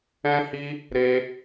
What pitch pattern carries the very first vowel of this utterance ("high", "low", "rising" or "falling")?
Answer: high